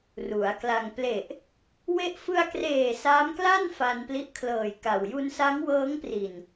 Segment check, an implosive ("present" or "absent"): absent